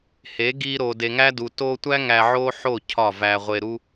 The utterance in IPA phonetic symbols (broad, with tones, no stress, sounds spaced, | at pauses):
h e˨˦ ɡ i˧ ɾ o˨ d e˨ ŋ æ˦ d u˨ t o˧ tʷ æ˦ ŋ æ˧ ʕ o˦ ħ o˦˨ cʰ ɒ˦˨ v æ˧ ʁʷ e˧ ɾ u˦